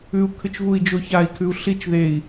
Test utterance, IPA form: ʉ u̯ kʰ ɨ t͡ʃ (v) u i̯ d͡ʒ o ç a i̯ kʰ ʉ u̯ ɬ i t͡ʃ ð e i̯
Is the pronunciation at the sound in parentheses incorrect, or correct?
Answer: correct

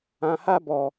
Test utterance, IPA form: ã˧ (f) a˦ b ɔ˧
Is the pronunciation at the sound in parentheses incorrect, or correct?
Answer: incorrect: h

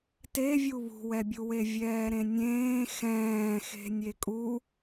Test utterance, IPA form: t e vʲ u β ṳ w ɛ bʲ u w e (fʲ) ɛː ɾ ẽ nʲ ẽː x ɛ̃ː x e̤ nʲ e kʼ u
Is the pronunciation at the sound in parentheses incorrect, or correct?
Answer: incorrect: vʲ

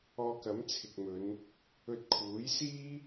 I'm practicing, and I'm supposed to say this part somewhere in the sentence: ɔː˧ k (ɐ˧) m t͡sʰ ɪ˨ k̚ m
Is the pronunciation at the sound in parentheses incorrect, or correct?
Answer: incorrect: ɐ˨˥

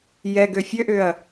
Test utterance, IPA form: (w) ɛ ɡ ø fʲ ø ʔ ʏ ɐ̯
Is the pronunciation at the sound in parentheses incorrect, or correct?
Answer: incorrect: j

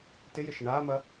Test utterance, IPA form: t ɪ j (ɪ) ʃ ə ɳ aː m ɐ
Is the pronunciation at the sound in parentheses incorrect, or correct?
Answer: correct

